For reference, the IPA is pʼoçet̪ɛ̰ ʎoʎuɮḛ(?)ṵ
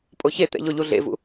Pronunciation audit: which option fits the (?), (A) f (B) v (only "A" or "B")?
B